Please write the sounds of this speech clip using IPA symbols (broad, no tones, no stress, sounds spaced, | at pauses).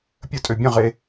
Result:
pʲ ə tʼ ø bʲ ə̃ ʁ e